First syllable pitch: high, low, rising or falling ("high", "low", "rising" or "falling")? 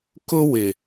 high